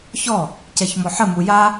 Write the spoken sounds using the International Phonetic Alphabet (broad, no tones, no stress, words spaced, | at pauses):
çɔ | cɛçmɔħə muja